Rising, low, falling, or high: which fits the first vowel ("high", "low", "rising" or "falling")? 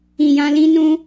low